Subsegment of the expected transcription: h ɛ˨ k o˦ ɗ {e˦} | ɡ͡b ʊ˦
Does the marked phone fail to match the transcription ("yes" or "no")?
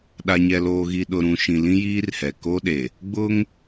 yes